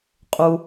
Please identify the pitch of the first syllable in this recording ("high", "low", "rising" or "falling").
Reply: low